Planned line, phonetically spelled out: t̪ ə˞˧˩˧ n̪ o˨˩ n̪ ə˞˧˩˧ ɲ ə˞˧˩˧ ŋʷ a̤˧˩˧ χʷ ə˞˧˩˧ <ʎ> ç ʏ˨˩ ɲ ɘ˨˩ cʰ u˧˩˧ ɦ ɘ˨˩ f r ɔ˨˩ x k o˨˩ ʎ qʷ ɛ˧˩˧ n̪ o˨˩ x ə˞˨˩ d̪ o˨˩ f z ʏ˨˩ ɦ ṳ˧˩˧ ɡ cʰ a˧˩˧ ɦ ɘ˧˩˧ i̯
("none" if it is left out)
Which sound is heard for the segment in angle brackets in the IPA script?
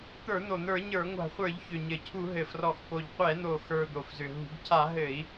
ʎ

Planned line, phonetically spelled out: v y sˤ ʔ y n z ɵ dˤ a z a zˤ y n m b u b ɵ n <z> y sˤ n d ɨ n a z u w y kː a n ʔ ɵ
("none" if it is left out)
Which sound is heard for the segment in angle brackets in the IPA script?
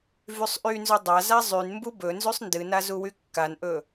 z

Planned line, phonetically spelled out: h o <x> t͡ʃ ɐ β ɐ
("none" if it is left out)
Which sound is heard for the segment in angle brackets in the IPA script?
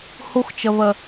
x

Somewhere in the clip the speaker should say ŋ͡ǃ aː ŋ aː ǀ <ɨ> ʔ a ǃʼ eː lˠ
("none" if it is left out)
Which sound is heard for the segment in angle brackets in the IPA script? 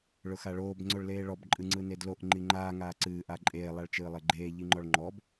ɨː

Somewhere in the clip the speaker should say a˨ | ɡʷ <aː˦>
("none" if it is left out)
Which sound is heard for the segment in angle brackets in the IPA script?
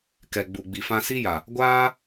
aː˦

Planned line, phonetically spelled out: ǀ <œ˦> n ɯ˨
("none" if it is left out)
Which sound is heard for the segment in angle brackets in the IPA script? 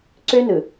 ø˦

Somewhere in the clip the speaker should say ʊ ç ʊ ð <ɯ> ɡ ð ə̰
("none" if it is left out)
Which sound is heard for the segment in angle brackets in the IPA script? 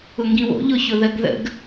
ə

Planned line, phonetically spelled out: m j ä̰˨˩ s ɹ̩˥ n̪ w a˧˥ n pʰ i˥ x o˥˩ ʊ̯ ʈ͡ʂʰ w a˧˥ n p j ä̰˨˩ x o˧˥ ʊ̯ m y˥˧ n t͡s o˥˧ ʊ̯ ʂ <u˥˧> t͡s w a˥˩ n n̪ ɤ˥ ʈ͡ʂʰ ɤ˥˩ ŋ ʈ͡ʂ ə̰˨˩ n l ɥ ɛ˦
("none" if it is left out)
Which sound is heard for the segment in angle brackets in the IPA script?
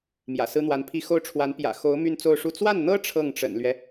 u˥˧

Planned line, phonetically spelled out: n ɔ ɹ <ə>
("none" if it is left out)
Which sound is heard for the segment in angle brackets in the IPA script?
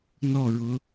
ʊ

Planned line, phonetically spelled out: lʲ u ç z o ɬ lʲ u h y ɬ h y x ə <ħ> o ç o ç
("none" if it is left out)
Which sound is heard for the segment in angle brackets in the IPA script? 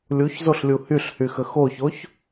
x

